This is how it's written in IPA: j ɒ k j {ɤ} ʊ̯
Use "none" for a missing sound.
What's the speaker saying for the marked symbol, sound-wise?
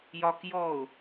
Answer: ɔ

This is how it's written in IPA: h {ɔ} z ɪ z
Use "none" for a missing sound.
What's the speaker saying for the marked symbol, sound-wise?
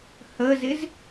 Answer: ə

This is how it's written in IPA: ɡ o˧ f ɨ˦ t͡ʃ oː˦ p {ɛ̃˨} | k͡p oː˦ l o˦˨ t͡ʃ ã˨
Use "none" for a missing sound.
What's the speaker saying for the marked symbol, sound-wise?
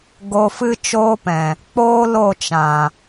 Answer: ɛ̃˨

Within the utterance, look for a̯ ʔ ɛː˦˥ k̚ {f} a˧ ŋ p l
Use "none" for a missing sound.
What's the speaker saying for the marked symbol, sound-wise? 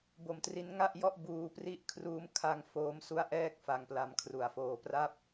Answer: f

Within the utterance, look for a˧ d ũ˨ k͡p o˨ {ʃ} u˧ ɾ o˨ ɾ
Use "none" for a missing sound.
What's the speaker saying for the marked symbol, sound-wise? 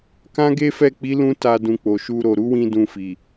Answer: ʃ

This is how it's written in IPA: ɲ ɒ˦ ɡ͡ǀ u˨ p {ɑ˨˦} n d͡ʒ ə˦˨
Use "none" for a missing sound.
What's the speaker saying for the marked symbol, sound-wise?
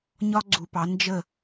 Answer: ɑ˨˦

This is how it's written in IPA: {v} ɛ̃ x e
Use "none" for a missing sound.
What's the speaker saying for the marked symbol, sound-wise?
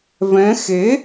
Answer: v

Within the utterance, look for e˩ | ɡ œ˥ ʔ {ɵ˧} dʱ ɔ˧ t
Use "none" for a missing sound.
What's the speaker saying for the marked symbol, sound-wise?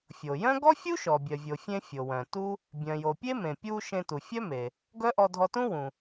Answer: ɔ˧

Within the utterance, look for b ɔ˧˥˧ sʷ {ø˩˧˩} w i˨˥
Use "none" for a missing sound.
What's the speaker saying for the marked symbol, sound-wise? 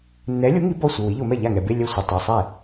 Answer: ɘ˩˧˩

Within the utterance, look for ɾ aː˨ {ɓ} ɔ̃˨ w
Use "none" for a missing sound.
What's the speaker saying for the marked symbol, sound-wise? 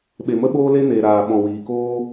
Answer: ɓ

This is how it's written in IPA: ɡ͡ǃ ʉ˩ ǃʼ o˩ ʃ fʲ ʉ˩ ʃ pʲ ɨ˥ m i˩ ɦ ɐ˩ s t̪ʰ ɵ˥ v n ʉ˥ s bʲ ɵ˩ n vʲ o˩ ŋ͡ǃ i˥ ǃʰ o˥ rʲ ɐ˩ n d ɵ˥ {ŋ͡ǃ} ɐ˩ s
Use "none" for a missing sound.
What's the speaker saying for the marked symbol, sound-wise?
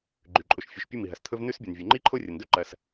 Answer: ǃ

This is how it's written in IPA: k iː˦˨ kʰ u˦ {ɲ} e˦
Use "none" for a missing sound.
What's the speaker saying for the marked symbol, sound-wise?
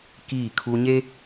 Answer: ɲ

